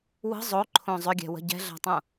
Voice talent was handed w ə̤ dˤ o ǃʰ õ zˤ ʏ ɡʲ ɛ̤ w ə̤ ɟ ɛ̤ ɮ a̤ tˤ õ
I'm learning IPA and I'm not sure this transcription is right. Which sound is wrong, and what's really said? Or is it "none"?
dˤ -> zˤ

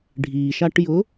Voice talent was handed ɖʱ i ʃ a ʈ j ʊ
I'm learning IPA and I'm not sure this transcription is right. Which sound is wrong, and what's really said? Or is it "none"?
none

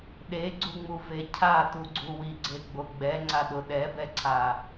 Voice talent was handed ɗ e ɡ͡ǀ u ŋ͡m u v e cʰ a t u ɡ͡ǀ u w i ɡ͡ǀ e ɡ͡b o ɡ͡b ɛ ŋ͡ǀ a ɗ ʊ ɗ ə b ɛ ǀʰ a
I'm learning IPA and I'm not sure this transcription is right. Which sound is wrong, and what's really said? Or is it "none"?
ə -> ɛ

